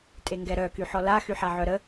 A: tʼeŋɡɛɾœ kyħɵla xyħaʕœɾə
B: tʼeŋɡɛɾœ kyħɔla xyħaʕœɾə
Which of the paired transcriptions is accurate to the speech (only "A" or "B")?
B